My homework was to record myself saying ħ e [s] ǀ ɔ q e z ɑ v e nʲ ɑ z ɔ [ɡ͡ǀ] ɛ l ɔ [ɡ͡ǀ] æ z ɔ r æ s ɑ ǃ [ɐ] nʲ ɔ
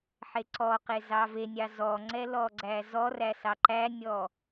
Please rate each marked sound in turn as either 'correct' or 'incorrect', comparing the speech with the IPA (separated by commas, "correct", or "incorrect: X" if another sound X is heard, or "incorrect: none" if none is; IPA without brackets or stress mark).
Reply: incorrect: none, incorrect: ŋ͡ǀ, correct, incorrect: æ